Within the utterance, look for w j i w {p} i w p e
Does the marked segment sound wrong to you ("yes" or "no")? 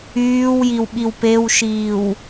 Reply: yes